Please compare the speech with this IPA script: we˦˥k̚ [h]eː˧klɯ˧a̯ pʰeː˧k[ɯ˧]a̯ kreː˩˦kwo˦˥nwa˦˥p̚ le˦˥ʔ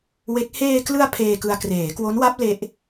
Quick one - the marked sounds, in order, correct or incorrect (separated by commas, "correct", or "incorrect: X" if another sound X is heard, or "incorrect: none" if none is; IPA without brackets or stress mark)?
correct, correct